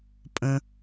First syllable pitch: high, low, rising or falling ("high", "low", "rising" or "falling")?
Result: high